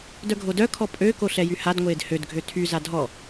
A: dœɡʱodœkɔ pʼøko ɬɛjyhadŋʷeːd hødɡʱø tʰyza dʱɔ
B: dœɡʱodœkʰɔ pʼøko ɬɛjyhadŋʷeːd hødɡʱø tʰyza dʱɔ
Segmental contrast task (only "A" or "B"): B